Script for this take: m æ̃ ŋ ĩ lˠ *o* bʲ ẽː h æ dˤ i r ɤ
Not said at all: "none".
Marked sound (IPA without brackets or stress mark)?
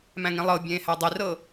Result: ɤ